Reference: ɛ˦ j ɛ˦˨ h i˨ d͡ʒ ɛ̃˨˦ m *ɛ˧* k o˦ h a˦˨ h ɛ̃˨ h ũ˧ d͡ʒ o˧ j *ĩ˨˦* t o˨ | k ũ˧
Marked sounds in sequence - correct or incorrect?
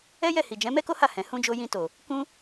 incorrect: ɛ˦, incorrect: ĩ˧

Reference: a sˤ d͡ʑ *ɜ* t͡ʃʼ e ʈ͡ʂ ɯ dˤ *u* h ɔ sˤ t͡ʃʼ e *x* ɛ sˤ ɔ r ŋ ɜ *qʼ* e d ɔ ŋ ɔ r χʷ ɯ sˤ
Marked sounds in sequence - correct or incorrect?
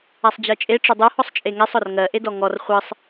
correct, correct, incorrect: ŋ, incorrect: ʔ

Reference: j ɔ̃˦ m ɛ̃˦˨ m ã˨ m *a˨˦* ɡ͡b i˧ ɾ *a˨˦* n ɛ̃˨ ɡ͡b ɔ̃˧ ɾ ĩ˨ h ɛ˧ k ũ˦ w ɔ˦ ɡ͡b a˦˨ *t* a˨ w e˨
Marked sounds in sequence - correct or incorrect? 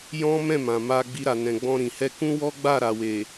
incorrect: a˧, incorrect: a˨, incorrect: ɾ

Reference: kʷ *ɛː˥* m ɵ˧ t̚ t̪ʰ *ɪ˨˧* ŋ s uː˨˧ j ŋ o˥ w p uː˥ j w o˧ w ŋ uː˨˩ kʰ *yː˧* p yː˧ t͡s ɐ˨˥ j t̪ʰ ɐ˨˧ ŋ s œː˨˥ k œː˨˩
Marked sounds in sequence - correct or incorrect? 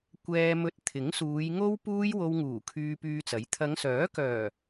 incorrect: ɛː˧, incorrect: ɪ˨˥, correct

